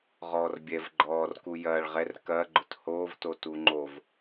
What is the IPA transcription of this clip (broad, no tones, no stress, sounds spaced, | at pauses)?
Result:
ʁ ɔː r bʲ ɛ v ɡ͡ǃ ɔː r k u j ɐː ɭ ʁ ɛ r k ɐː ɡ͡ǃ ʊ t h oː v t o t u ŋ͡ǃ o v